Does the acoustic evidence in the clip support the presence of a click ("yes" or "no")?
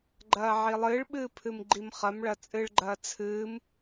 yes